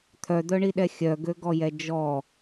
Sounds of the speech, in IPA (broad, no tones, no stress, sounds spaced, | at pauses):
t̪ʰ œ d̪ œ ɳ i ɗ ɛ xʲ œ ɡ ø ɡ ɔ j ɛ d͡ʒ ɔ